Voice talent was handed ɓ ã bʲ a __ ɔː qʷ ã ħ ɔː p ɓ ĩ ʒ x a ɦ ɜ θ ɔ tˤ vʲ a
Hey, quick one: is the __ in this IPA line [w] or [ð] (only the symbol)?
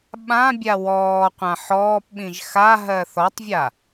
w